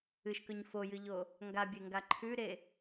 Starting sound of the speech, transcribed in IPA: ɨ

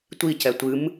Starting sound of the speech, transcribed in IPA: tʷ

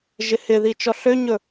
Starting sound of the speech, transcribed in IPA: ʒ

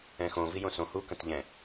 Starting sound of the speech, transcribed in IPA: ɛ̃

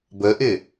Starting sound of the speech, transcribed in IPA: b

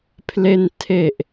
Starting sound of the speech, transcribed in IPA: pʰ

